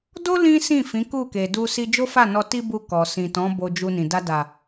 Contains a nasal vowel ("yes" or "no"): yes